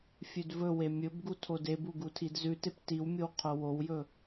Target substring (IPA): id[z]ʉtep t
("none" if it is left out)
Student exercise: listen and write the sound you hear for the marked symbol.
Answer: z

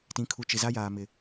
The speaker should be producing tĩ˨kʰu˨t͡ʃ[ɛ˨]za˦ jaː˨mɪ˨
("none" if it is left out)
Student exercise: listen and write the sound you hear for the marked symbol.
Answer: ɪ˨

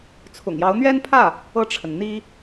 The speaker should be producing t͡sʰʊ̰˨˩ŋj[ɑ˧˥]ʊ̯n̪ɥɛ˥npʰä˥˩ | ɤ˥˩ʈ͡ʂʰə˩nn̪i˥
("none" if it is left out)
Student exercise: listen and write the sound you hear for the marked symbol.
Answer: ɑ˧˥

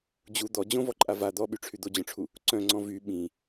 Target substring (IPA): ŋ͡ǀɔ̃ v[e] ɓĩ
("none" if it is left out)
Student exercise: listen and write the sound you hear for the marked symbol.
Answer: y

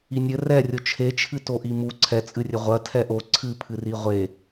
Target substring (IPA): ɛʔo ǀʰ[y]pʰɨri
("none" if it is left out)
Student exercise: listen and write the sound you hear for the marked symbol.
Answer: ɨ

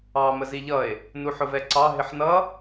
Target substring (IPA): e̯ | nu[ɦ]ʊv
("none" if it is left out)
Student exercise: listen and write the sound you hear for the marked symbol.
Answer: ħ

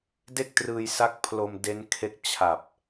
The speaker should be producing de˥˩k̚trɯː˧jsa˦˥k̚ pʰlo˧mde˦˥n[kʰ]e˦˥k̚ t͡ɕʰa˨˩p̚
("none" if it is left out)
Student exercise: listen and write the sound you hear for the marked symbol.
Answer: kʰ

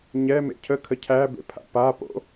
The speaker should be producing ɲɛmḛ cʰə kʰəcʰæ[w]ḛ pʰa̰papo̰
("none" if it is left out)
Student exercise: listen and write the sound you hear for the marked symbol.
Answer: b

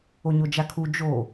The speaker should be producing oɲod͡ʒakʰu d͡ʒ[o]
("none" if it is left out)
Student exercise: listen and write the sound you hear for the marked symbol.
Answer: o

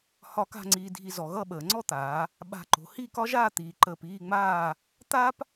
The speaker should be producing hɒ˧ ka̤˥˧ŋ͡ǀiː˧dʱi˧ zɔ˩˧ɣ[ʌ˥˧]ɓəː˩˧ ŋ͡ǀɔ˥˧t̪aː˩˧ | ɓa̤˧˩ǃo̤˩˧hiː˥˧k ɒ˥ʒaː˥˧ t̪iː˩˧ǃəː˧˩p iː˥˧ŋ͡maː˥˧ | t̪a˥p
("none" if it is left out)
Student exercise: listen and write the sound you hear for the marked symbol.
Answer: ʌ˥˧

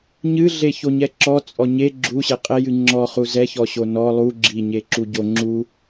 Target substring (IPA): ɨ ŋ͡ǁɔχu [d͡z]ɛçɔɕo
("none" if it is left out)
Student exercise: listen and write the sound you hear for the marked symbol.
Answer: z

